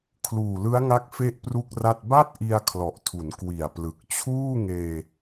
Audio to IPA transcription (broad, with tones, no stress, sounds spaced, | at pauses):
kʰ l uː˨˩ l ɯ˦˥ a̯ ŋ a˦˥ k̚ f e˥˩ ʔ p r u˥˩ k̚ r a˥˩ t̚ b a˥˩ t̚ ʔ i˧ a̯ kʰ l ɔ˨˩ ʔ tʰ u˩˦ n k w i˨˩ a̯ p l ɯ˨˩ k̚ t͡ɕʰ uː˥˩ ŋ eː˧